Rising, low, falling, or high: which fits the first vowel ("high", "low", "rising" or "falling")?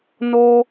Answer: high